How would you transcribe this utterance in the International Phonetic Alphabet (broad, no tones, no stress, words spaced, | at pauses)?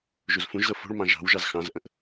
ʒuzfũʒzɤ fo̤ɭmɑ̃ ʒɑ̤w ʒɑzxɑ̃zʔə̃ʔ